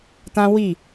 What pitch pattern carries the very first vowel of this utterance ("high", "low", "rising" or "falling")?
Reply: high